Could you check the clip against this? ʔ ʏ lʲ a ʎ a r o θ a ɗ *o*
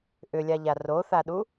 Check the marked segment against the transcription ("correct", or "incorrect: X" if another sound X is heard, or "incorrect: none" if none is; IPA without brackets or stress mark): incorrect: u